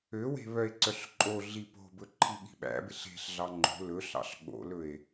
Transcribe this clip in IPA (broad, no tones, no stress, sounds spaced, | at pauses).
ø w e̤ β œ e̯ ǀ œ ɬ ǃʼ o ɮ i p o̤ b ɵ ǃʰ i ɠ i̤ ɓ æ̰ b e ɬ e̤ ɬ ɮ ɑ ŋ͡ǃ o̤ l ɵ ɬ ɑ̰ ɬ ɠ o̰ l ɵ e̯